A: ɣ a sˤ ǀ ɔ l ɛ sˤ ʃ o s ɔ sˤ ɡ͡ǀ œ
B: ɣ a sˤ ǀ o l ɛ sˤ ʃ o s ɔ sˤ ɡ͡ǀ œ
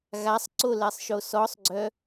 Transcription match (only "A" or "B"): B